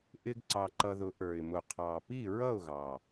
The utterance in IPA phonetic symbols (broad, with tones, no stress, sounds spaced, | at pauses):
ʔ ɪ˧ ɡ ǀ ɑ˨˩ ǃ ʌ˧ ð ʊ˨˥ ʔ ə˞˨˩ ɪ̯ m ʊ˨˩ qʰ ɑ˨˩ p i˥˨ ɹ ʌ˥˨ ʊ̯ ɣ ɑ˨˩